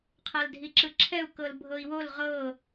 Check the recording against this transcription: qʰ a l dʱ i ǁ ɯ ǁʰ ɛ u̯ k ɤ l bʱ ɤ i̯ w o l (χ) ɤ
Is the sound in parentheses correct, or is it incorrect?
incorrect